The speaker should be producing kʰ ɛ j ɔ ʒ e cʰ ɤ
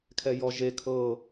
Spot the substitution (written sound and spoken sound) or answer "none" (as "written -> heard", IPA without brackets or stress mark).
cʰ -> kʰ